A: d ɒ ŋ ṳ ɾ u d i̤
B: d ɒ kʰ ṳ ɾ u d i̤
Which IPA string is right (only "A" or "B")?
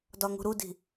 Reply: A